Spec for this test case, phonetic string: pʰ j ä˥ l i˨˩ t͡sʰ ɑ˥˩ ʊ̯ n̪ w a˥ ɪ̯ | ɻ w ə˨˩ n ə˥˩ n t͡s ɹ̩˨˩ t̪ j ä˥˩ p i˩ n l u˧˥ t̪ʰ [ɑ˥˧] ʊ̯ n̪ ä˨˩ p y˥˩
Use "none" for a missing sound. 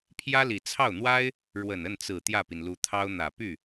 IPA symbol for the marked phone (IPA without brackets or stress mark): ɑ˥